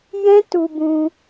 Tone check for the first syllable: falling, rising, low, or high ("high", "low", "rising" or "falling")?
high